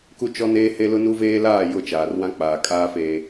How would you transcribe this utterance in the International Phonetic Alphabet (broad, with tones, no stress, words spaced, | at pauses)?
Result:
ku˦ t͡ʃɔ˦neː˦ he˦lʊ˦nu˦veː˦ laː˦˨ jʊ˦˨t͡ʃaː˨rwã˦ k͡paː˨ kʼaː˦feː˨